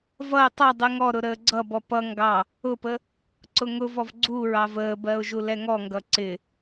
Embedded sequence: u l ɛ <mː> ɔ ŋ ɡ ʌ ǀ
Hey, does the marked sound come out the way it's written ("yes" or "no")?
no